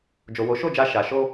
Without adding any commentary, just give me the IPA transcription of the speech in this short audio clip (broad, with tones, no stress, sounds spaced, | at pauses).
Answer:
d͡ʒ o˨ w o˨˦ ʃ o˦˨ d͡ʒ a˧ ʃ a˨ ʃ o˧